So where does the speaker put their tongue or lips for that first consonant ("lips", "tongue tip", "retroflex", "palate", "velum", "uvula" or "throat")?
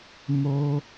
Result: lips